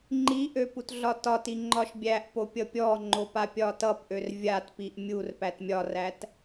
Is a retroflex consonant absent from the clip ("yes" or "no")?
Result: yes